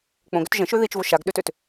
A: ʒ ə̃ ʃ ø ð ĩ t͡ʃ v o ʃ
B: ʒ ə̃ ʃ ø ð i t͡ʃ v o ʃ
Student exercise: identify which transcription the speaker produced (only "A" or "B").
B